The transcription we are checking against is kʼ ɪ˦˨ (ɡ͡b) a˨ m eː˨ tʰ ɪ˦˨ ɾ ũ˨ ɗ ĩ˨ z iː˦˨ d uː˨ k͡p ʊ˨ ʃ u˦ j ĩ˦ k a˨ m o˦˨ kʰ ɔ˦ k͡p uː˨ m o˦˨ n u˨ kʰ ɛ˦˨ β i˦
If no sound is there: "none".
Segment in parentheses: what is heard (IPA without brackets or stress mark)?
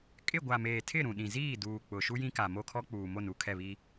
ɡʷ